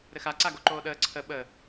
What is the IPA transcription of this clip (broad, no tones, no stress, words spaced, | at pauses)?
ɾɘxa ǀaɡoǃoːɗəː ǀʰə ɓə